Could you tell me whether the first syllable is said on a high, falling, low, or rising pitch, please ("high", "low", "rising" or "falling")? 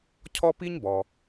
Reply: high